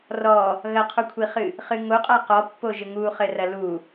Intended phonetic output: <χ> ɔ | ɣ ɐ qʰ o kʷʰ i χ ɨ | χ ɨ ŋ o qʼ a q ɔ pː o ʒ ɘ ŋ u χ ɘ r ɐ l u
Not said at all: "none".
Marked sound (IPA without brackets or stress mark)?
r